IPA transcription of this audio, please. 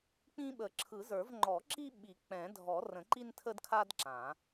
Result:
k͡p ĩ˦ ɓ ə˨˩˦ ǁʰ ɯ˨˩˦ z ə˞˨˩˦ v ŋ͡ǃ ɔ˨˩˦ ǁ i˦ ɓ i˨˩˦ k͡p ɛ̃˨˩˦ dʱ ɔ˨˩˦ r ə̃˨˩˦ ǃ i˦ n tʰ ə˦ d kʰ a˦ d ǁ ã˨˩˦

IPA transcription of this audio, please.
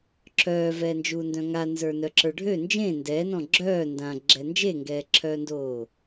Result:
ǁʰ œː v ɛː n d͡ʒ uː n d œ̃ ŋ a n z ə˞ n œ ǁ ə˞ ɖʱ ø n d͡ʒ ẽ n d ɛː n ɔ̃ ɡ͡ǁ œː n d ã ɡ͡ǁ ɛ n d͡ʒ e ŋ ɡ ɛː ǁʰ œː n d oː

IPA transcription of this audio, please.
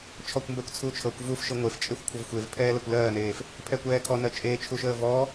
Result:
t͡ʃʰ ɔ kʷ m b ɛ kʷ t͡sʰ u t͡ʃʰ ɤ kʷ v u f ʃ ɤ ŋʷ e f t͡ʃʼ e xʷ kʷʰ ɤ v xʷ e v pʰ ɛː l ɛ kʷ l ɜː n eː f | pʰ ɛ kʷ ɛː kʰ ɔ n ɜ t͡ʃʼ e t͡ʃʰ u ʃ əː v ɔ

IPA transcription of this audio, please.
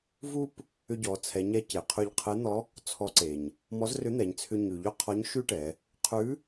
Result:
v u˥ p | ʏ˧ ɟ ɔ˩˧ t͡sʰ ɛ˩˧ ɲ ɛ˧˥ c e˩ qʰ ʉ˧ ʎ qʰ e˧˥ n̪ ɔ˧˥ | t͡sʰ ɔ˧˥ ǀ e˩ ɲ | m ɔ˧˥ z r ʏ˧˥ n̪ ɛ˩˧ ɲ t͡sʰ ʏ˧ ɲ ʉ˩ ʎ ʏ˥ qʰ ɔ˧˥ ɲ ʃ ʉ˥ ʈ ɛ˩˧ | qʰ ʉ˧˥

